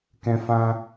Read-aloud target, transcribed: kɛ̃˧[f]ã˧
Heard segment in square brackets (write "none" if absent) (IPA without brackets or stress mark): f